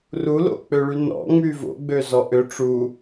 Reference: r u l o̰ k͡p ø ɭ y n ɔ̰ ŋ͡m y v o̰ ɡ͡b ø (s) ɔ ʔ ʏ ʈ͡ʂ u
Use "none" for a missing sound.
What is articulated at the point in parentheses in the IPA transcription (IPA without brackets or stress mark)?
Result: z